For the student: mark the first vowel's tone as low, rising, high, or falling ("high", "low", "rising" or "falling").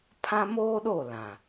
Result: high